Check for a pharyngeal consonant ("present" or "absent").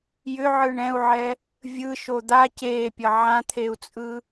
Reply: present